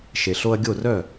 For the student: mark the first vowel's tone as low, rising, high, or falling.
low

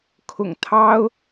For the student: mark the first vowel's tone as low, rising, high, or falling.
low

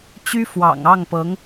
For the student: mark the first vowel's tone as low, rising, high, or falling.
high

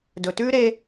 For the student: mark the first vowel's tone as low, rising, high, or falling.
low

